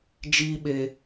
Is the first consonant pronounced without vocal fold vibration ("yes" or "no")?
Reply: no